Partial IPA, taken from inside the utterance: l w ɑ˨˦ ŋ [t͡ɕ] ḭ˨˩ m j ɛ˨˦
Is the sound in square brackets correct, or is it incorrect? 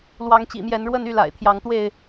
correct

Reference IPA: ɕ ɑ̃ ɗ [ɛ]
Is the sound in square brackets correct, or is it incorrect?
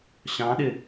incorrect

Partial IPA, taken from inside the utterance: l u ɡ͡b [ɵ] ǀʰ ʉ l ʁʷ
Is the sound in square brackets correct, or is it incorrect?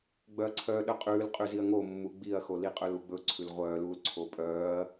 correct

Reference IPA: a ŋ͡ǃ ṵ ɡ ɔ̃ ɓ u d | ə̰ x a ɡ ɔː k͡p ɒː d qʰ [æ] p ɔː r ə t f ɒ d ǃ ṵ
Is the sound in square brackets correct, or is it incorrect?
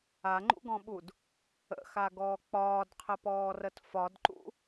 incorrect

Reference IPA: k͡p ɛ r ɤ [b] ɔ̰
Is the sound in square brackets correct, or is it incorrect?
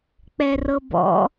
correct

